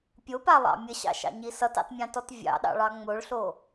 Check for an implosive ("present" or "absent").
present